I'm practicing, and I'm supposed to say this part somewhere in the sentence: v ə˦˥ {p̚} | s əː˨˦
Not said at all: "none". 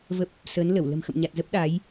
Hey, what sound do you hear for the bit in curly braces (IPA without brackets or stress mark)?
p̚